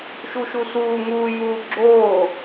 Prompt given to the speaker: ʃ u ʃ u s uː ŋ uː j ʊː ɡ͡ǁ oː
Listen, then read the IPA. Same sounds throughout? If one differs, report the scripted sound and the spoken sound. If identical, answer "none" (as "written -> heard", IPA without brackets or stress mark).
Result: ʊː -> uː